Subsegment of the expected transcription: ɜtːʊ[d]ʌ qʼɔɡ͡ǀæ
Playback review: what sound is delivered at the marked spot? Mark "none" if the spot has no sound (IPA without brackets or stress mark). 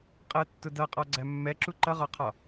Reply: d